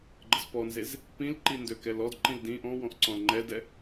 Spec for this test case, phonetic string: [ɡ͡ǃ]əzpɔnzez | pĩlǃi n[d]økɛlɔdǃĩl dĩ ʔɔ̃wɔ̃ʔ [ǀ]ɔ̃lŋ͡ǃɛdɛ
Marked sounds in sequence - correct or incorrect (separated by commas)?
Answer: correct, correct, correct